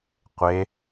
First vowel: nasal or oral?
oral